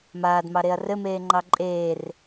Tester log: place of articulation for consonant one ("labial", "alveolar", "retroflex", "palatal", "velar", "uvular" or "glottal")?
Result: labial